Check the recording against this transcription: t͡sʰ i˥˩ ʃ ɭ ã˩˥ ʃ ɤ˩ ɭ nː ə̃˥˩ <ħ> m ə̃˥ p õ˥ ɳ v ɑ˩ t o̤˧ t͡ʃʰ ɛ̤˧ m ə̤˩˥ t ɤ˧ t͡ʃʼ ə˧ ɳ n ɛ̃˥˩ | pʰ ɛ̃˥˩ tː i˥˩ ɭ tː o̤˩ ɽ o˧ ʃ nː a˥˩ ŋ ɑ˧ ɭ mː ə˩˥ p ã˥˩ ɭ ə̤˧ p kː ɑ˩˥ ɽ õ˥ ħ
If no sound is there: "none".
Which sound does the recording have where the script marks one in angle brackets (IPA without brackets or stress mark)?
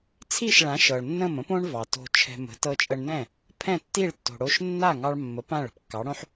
none